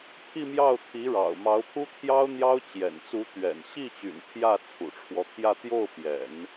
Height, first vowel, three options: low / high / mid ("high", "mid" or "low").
high